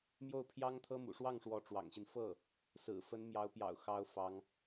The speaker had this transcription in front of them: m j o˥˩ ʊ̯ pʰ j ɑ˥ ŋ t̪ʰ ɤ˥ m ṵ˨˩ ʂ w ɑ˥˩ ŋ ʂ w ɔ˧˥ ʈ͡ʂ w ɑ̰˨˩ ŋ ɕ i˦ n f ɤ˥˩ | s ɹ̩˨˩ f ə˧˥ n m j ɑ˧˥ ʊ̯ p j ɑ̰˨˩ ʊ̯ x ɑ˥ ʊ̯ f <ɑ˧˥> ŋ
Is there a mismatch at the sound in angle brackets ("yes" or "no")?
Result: no